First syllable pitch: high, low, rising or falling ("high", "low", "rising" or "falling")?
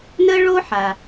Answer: high